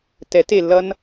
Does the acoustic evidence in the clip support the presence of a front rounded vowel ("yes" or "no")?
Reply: no